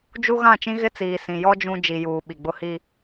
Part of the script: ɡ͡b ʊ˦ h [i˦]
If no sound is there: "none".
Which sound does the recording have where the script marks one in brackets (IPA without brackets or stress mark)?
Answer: i˦